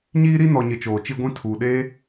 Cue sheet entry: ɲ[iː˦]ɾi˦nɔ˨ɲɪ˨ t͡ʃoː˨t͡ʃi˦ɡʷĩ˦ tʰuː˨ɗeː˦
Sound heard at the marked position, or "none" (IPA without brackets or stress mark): iː˦